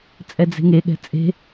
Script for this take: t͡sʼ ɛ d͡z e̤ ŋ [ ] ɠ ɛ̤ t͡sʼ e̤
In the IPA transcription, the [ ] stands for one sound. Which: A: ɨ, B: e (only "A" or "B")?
B